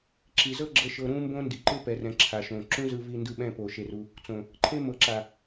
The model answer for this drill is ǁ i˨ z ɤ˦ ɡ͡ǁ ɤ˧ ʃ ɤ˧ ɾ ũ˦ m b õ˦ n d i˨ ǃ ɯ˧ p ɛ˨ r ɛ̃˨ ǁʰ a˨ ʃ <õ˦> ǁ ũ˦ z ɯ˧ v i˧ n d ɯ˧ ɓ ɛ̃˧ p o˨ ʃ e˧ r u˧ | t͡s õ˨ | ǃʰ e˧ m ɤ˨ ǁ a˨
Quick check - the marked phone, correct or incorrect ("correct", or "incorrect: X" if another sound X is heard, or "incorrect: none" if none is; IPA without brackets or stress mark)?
incorrect: õ˨